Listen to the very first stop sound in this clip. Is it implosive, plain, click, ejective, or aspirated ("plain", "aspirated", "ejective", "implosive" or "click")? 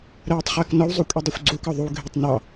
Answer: plain